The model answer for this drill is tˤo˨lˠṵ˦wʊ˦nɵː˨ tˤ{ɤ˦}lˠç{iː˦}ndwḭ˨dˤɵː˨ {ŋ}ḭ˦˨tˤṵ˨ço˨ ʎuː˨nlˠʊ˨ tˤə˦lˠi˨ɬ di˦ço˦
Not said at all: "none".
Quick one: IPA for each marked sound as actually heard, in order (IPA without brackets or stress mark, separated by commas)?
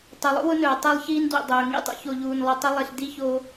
ɤ˦, iː˦, ŋ